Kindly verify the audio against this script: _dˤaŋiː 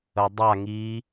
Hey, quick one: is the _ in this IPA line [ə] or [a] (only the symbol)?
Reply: ə